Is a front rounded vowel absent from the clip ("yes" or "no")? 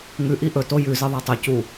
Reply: yes